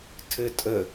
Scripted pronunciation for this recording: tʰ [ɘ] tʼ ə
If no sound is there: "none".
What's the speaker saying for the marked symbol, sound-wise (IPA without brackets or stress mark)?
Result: ɘ